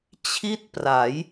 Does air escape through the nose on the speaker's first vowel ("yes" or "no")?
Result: no